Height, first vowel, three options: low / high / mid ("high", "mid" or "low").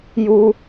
high